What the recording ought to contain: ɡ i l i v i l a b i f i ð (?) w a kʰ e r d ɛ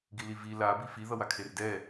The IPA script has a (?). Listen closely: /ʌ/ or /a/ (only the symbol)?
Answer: ʌ